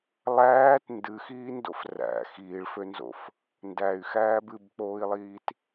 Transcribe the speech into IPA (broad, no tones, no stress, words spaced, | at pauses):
lˠæːt ndɨxiːndo̰f ræ̰ xiːɭfønzo̰f | ndæy̯xæːb ɨbk͡poːi̯lˠiːt